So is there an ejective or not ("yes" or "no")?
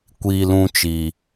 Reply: no